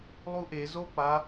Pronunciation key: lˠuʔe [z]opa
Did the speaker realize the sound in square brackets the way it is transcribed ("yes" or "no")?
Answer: yes